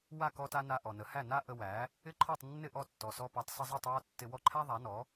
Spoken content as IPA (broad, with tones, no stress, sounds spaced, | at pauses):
w a˥˩ k ɔ˧ t a˧ n a˧ ʔ ɔ˩ n ə˩˥ h æ˥˩ n a˥ ʔ ə˧ w æ˩˥ | ɪ˥˩ ǃʰ ɔ˥˩ tˤ nː ɪ˥˩ ʔ ɔ˥˩ tː ɔ˩ s ɔ˧ p a˩˥ tˤ s ə˧ zˤ i˥˩ tˤ w ɔ˥˩ tː ɪ˧ w ɔ˥˩ ǃʰ æ˥ ðˤ æ˩˥ n ɔ˩˥